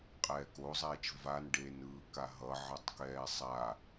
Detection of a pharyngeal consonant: present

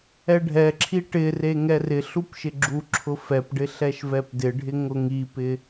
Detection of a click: present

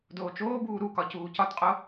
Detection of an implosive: absent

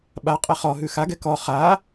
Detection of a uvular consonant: present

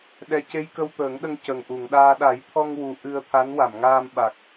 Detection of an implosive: present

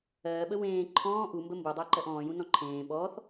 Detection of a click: present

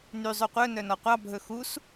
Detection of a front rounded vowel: present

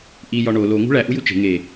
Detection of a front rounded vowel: absent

